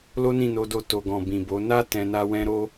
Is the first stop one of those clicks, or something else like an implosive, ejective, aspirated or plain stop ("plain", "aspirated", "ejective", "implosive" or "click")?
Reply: plain